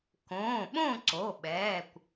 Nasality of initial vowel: nasal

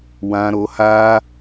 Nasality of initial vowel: nasal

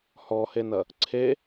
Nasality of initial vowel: oral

